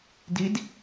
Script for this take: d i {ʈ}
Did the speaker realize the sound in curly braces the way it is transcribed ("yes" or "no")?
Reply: no